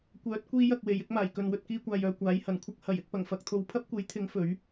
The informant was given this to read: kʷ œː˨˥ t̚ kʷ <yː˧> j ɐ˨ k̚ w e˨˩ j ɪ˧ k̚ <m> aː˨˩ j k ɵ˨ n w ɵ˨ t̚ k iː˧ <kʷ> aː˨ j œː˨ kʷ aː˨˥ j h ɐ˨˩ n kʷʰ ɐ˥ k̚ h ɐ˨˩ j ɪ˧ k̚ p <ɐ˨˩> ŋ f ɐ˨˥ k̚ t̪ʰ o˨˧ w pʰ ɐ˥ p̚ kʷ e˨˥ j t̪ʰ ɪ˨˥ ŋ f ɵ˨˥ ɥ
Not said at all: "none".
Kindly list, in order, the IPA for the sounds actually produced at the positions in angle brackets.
iː˧, m, kʷ, ɐ˨˩

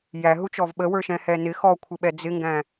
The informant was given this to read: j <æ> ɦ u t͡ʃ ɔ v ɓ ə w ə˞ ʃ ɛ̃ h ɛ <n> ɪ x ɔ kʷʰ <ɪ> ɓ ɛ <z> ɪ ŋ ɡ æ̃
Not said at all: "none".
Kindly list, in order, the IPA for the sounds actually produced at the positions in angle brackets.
æ, n, ɪ, d͡z

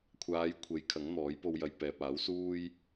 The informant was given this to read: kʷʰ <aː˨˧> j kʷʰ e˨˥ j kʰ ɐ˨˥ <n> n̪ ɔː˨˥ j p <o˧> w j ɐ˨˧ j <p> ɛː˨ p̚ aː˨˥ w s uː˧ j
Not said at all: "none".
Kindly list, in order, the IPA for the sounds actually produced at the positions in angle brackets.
aː˨˧, ŋ, o˧, p

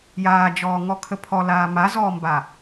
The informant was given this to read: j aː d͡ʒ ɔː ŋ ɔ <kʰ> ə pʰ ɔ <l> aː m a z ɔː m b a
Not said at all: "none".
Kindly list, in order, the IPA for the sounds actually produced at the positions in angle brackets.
kʰ, l

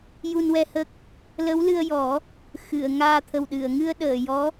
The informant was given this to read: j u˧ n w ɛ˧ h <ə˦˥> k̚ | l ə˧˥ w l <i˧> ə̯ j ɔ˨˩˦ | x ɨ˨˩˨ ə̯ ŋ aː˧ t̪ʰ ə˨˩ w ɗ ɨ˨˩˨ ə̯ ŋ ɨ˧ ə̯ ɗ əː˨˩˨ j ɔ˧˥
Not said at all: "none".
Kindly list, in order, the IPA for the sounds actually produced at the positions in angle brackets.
ə˦˥, ɨ˧

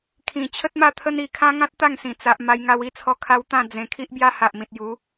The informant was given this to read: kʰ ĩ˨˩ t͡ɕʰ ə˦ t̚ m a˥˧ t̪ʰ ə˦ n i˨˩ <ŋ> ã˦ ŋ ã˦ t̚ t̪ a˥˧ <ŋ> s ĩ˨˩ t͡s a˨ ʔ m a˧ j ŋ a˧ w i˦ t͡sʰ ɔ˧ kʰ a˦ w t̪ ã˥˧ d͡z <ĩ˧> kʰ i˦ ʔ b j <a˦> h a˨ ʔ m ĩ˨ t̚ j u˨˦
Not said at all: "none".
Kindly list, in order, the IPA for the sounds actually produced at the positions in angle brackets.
kʰ, ŋ, ẽ˧, a˦

